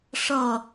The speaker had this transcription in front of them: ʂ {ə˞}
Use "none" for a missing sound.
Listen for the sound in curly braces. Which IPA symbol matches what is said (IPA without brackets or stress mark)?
ʌ